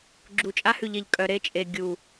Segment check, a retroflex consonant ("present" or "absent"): absent